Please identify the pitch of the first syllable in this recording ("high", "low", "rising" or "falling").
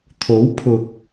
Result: rising